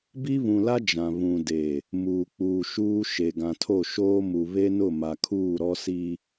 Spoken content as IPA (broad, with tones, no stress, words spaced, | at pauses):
bi˦ βũ˨la˦ d͡ʒã˨ βũ˨de˨ | muː˨k͡puː˨ ʃuː˦ ʃe˨ɡã˨tʰo˦˨ʃoː˦ mu˨ βe˦nʊ˦˨ma˨kʰuː˦˨ ɾɔ˦si˦